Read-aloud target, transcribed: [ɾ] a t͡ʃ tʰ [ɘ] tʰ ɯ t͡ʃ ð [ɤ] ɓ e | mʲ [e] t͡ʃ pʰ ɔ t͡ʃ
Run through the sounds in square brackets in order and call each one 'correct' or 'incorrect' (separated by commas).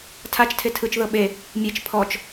incorrect, incorrect, correct, correct